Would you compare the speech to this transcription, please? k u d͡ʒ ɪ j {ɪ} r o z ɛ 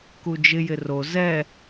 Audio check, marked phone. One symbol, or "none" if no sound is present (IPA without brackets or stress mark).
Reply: ɪ